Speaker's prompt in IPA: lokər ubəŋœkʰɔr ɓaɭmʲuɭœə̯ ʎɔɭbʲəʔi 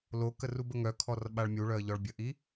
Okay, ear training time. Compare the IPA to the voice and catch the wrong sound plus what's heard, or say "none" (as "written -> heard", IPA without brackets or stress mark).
none